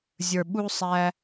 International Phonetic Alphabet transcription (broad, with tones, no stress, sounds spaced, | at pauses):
zʲ ə˞˨ ɓ u˧ sˤ æ˧